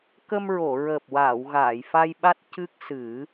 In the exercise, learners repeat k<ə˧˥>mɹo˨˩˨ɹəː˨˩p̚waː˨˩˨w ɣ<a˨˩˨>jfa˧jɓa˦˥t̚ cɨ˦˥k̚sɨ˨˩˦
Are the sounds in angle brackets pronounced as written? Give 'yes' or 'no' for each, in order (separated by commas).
no, no